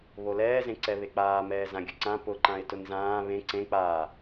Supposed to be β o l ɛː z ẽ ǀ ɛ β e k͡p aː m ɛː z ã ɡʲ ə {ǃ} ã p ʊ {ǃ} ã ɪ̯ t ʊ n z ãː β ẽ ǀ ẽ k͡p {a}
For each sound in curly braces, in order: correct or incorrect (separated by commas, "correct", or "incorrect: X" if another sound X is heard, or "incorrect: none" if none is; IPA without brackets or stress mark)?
incorrect: ǀ, correct, incorrect: aː